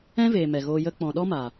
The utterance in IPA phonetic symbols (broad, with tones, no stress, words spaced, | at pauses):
ɛ̃˦veː˨ mɛ˨ɣoː˧jə˦ k͡pɔ̃˨ɗɔ˦maː˨